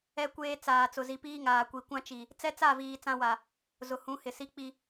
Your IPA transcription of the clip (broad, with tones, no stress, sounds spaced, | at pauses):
ɛ˦ kʷ eː˦ t͡s aː˨ t͡s ʊ˨ z i˨ p iː˦ ŋ aː˨ kʷ i˨ kʷ ã˦ t͡ʃ i˨ | t͡s ɛ˦ t͡s a˦˨ v iː˨ t͡s ã˦ w a˨ | z ʊ˨ h ũ˨˦ h ɪ˨ s i˦ k͡p i˦